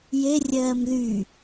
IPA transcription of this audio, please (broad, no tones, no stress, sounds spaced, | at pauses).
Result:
j e rʲ ɜː m ð y